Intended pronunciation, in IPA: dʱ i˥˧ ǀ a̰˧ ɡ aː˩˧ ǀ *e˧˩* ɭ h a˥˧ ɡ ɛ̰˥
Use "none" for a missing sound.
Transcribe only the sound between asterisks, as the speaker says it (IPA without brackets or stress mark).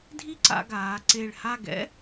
e˧˩